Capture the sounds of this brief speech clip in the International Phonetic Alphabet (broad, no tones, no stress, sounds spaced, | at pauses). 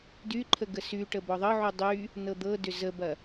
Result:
d y ǃʰ ə ɡ ə s y ʈ ə b ɔ ðˤ ɤ ʕ u dˤ y | n ɤ d̪ ɤ d ʏ z ə b ɐ